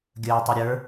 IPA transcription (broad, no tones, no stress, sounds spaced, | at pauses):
ɡʲ əː tˤ ɛ ɾʲ ə˞